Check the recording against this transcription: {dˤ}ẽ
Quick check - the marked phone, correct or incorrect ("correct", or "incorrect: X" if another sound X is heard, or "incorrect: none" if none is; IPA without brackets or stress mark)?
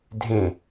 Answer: incorrect: dʱ